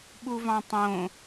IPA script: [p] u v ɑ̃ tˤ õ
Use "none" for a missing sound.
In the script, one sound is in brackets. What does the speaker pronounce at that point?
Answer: ɓ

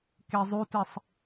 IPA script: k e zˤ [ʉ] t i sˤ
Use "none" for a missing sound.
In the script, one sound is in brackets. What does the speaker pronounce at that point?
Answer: ʉ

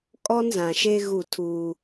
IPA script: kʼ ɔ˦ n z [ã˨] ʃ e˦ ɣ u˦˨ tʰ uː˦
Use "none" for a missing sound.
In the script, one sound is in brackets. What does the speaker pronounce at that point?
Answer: ã˨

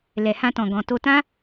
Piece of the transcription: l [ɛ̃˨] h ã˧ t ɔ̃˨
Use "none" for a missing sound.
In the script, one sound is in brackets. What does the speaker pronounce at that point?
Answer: ɛ˨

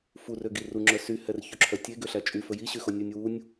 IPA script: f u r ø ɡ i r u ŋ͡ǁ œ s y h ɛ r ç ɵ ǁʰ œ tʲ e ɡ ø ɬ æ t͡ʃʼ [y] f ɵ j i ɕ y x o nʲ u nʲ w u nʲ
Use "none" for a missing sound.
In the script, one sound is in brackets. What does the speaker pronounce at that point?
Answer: y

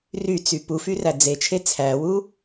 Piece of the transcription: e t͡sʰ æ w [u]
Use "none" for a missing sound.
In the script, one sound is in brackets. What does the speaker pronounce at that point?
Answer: u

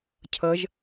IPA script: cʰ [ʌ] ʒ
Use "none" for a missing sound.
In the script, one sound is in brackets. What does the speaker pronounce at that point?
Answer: ʌ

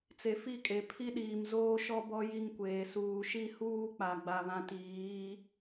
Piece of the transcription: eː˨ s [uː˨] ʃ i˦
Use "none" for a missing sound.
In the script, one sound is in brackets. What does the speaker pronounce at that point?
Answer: uː˨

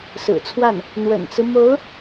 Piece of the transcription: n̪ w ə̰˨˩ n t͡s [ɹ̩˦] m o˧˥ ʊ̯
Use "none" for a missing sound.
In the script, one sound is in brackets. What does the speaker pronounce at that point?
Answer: ɹ̩˦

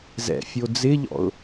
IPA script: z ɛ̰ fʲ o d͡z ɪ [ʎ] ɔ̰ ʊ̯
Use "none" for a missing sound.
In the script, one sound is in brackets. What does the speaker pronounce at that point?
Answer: ʎ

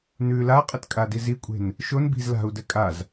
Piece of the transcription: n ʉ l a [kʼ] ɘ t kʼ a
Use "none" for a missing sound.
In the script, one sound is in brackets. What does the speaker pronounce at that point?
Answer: qʼ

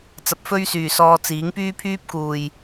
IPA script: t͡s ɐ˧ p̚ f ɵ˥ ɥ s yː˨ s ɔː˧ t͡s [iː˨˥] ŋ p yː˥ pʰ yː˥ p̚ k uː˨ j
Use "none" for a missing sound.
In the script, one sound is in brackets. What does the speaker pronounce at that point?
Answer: iː˨˥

